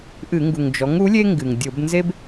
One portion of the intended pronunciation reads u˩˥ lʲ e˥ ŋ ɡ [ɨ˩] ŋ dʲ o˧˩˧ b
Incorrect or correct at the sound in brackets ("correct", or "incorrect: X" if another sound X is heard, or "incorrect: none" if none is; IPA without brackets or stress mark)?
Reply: correct